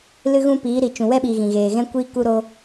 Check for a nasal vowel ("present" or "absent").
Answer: present